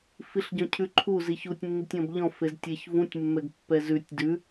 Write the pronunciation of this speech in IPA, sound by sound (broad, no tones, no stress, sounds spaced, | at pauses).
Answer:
f i ɬ ɟ ɔ̃ cʰ ʉ ǃʰ u z i ç u tʲ nː i tʲ ɔ̃ b ʎ ɔ̃ f e z tʲ ɛ ç v ũ tʲ mː ɛ ɡ pː ɛ z ʉ tʲ d ʉ